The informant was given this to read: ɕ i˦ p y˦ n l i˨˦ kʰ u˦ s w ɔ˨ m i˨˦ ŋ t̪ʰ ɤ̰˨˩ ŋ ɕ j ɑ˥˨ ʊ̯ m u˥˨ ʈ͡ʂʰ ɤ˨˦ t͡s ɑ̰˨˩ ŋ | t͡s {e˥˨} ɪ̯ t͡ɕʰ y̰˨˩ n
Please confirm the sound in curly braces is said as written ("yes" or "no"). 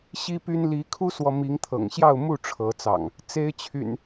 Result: no